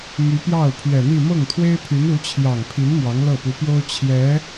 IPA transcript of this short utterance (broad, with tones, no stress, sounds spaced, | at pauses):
m y˧˥ p j ɑ˥˩ ʊ̯ pʰ ɥ ɛ˨˩ n̪ i˥˧ m ɤ˥˩ ŋ t̪ʰ w e˥ ɪ̯ pʰ y˧˥ n u˧˥ t͡ɕʰ j ɑ˨˩ ŋ pʰ i˧˥ n m w ɑ˧˥ ŋ l ɤ˥˩ p u˧˥ p j o˥ ʊ̯ t͡ɕʰ j ɛ˧˥